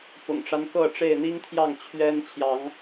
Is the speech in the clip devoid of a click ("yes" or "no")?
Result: yes